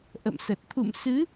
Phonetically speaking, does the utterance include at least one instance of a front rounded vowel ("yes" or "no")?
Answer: no